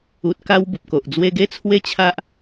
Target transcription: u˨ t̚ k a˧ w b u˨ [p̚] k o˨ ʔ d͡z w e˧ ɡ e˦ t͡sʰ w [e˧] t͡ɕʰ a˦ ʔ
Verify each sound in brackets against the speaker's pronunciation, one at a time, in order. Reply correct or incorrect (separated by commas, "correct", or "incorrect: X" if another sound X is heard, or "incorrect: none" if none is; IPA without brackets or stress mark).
correct, incorrect: e˦